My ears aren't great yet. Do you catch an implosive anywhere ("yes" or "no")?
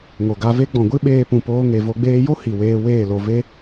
yes